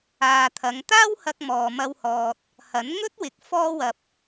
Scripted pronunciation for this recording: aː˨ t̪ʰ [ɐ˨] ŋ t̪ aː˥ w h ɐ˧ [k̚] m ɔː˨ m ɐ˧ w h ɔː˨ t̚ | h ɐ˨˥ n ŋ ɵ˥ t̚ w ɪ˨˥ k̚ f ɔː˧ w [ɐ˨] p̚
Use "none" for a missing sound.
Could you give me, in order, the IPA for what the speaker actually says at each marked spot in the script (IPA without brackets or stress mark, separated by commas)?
ɐ˨˧, k̚, ɐ˨